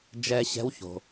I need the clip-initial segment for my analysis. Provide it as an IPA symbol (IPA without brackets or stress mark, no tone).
d͡ʒ